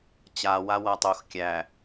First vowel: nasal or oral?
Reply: oral